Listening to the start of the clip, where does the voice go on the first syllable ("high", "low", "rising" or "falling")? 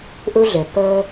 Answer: high